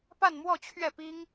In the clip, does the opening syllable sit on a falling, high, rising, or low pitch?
falling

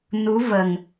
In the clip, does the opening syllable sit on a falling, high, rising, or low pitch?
rising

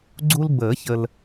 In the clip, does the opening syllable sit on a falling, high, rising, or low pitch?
high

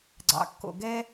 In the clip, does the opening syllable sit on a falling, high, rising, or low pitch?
low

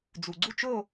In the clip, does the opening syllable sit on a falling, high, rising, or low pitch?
low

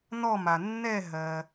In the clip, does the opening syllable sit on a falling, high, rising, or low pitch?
falling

